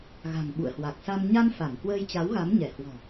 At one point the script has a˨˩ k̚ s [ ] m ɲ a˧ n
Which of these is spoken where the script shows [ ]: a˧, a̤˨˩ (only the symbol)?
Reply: a˧